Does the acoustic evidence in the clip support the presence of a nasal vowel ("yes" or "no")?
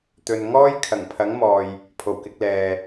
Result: no